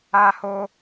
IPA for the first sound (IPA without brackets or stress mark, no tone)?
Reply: a